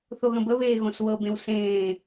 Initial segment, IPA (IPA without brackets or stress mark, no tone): θ